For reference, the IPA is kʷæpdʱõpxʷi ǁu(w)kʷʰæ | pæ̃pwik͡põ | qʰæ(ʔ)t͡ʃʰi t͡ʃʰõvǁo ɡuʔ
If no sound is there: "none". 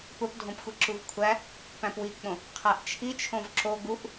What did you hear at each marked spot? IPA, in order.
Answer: v, ʔ

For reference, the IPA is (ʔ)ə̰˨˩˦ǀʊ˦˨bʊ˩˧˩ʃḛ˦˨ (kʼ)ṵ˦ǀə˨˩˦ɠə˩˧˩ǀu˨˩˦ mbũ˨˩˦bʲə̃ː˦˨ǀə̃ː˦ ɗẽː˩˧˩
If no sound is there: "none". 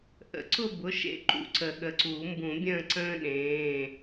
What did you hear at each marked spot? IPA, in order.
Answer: ʔ, ǃ

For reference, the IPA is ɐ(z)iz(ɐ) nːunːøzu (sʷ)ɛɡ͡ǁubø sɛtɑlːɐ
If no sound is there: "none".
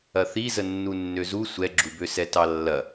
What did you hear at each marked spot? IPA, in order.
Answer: θ, ə, sʷ

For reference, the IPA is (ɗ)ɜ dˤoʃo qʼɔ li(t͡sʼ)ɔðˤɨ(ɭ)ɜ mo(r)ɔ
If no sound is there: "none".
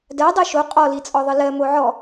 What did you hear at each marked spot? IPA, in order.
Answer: d, t͡sʼ, l, ʕ

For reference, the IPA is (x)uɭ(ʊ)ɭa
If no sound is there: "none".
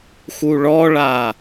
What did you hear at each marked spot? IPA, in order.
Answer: x, ɔ

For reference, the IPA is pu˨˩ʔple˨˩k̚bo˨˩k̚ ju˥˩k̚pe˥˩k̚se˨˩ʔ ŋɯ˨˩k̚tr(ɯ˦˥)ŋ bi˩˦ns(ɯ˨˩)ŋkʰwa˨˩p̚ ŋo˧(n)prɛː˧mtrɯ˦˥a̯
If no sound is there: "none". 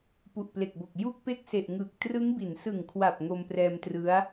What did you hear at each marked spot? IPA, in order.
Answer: ɯ˦˥, ɯ˨˩, m

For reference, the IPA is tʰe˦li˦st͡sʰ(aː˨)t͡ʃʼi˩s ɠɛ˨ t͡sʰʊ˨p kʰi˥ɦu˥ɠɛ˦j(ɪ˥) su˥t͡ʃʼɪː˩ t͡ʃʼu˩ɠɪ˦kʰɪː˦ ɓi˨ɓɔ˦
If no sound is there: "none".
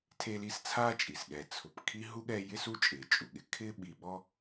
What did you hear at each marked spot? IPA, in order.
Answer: aː˥, ɪ˥

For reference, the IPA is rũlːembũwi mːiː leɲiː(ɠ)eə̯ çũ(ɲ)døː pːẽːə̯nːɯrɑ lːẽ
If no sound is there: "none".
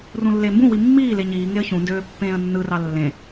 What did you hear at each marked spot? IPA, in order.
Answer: ŋ, n

